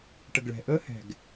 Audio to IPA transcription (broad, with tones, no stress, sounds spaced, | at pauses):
ʈ ə˨ ɡ ɭ ɛ̤˨ ʔ əː˦ h ɛ̤˧ ɡ